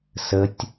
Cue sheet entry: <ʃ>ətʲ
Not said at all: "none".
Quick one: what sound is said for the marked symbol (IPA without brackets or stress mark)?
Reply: s